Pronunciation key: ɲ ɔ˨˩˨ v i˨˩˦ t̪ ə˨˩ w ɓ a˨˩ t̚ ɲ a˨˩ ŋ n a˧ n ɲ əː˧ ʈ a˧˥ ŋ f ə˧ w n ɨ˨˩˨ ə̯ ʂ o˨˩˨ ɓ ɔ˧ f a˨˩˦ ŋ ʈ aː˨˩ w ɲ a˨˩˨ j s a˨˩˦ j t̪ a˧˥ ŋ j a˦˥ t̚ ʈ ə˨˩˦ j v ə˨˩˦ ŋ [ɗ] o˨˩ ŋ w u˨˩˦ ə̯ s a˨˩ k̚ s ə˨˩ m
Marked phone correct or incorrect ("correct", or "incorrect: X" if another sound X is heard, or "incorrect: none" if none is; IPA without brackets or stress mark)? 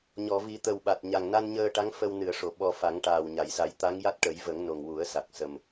incorrect: n